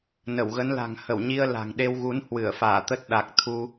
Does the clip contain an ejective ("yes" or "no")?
no